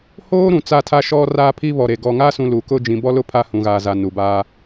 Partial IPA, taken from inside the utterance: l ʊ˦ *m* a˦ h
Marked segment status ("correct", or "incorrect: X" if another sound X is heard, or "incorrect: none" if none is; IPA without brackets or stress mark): incorrect: pʰ